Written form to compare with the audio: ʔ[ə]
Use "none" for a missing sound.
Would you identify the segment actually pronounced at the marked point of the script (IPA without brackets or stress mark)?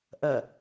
ɐ